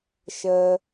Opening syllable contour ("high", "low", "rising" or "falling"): high